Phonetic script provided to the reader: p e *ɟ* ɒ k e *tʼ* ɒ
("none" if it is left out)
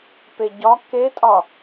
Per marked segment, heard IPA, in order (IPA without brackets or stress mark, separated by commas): ɟ, tʼ